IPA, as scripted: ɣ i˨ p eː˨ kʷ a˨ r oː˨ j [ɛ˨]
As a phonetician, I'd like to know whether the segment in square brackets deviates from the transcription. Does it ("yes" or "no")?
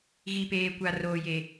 yes